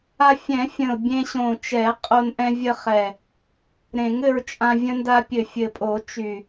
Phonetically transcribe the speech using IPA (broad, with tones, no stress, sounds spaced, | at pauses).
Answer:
a˧ fʲ ɛ̃˨˩˦ fʲ ə̃˨˩ ʊ̯ bʲ ẽ˧ ɕ õ˨˩ t͡ʃ ɛ˨˩˦ qʼ o˧ n ʔ ɛ̃˧ vʲ ə˧ χ ɛ˨˩ | ɾ ẽ˨˩˦ ŋ ɘ˧ ɹ t͡ʃʼ ã˧ vʲ ə̃˧ n d a˧ pʲ ɘ˨˩ fʲ ɘ˨˩ pʼ o˨˩˦ t͡ʃ y˨˩